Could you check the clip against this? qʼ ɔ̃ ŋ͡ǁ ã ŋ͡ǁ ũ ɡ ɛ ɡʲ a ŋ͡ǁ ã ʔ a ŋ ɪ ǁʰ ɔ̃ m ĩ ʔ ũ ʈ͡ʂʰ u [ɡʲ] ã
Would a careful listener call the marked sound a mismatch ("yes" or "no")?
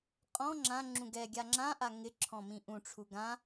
yes